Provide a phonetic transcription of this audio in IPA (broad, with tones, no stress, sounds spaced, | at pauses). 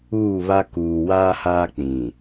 uː˦˨ β a˦ k uː˨ w aː˦ h aː˦ k͡p ĩ˨